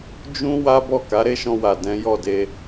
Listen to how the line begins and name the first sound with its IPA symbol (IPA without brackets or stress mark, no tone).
d͡ʒ